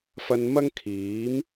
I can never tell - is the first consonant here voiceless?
yes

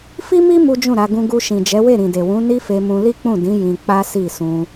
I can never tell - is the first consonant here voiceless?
yes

